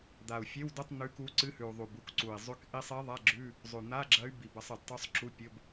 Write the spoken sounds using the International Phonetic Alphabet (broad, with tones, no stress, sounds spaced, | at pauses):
d̪ a˨˩ u̯ fʲ e˧˥˧ w d ɨ˧˥˧ tˤ n̪ ʉ˧˥ k u˧˥ ǀ ɨ˧˥˧ h ʉ˨˩ u̯ ðˤ u˨˩ b u˧˥ k ǀ u˨˩ i̯ zˤ ʉ˧˥ k ʔ i˧˥ sˤ i˧˥ ðˤ a˧˥˧ ɡ͡ǁ ʉ˧˥˧ | zˤ ʉ˨˩ n̪ a˧˥˧ ɡ͡ǁ ɐ˧˥ y̯ b i˨˩ b ɐ˧˥ sˤ ɨ˨˩ d tˤ ʉ˧˥ sˤ ǁ u˧˥˧ pʲ ɵ˧˥˧ b